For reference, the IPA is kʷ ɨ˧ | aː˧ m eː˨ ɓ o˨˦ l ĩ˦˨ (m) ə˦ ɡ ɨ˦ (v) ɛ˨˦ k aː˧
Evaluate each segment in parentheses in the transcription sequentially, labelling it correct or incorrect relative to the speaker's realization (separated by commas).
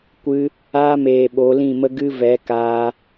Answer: correct, correct